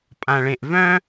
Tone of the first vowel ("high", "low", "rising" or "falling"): low